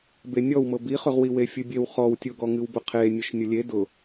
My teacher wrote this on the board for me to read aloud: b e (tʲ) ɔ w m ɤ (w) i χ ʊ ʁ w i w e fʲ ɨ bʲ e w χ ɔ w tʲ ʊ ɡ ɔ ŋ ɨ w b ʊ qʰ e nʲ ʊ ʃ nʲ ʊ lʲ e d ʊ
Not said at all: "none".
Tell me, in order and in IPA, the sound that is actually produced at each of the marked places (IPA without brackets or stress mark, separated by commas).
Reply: nʲ, b